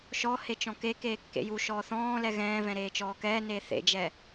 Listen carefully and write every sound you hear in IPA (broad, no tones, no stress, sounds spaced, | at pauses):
ʃ ɔ h e t͡ʃ ɔ̃ k e k eː kː ḛ j u ʃ ɔː θ ɔ̃ː l ɛ ɣ ɛ̃ː v ɛ̃ ɾ eː t͡ʃ ɔː k ɛː n eː θ ḛ d͡ʒ ɛ